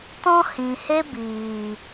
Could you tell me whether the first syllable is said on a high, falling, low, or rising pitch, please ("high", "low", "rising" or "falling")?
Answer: high